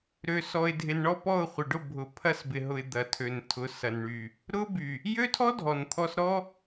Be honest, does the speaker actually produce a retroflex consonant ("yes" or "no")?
yes